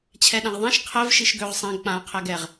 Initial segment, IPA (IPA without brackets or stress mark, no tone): t͡ɕʰ